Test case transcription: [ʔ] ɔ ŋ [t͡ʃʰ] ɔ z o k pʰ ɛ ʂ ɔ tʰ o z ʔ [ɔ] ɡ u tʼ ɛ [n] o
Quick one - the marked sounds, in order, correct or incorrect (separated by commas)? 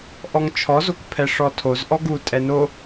correct, correct, correct, correct